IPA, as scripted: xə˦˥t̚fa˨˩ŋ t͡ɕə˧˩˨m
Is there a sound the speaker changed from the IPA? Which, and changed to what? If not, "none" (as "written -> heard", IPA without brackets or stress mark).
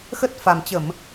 ŋ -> m